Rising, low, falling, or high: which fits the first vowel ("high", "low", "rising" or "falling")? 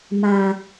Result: low